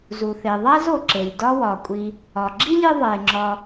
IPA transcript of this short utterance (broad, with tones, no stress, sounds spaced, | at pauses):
z u˩ θ e˩ ðˤ æ˥ z o˩ ǁ e˩ lʲ d ɒ˦ w ɒ˩ kʷʼ i˨ | ɒ˩ ɡ͡ǁ i˥ lʲ e˦ ðˤ e˩ ŋ͡ǁ ɒ˨